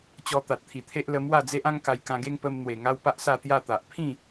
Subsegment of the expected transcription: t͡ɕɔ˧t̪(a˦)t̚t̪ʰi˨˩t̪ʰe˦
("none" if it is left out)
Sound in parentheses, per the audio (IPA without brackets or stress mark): a˨